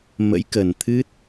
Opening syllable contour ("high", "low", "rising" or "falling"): rising